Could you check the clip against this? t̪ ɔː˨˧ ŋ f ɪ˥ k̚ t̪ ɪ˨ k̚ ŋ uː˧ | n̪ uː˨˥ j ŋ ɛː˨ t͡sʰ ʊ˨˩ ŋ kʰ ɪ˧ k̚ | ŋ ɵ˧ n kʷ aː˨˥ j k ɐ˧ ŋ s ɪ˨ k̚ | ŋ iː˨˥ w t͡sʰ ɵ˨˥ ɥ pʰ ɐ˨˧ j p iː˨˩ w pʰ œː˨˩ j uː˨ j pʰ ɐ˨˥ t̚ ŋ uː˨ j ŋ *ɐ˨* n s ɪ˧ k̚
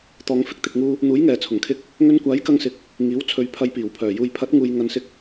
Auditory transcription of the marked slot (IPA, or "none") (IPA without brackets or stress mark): ɐ˨